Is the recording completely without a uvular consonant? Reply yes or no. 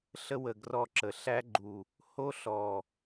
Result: yes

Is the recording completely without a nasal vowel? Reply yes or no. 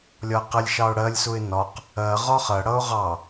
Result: yes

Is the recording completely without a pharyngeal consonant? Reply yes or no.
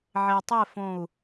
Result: no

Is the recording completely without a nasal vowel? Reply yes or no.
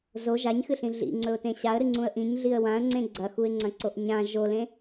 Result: no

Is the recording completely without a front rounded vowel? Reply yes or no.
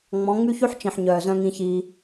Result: no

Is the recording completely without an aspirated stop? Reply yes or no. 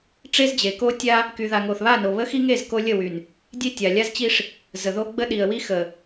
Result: yes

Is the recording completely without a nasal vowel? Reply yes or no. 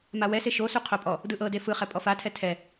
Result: yes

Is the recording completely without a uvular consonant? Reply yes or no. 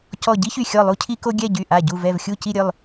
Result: yes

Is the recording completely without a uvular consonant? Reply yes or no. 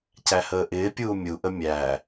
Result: yes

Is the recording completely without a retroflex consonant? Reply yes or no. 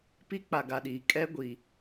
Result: yes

